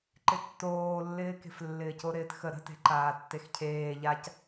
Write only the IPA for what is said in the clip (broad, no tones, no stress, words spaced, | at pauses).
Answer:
ǃɪtːoːlːɪːke̤f lːɪːcoɾɪːtxə ɾə̤te̤ ǃaːtːexcʰeː ʎac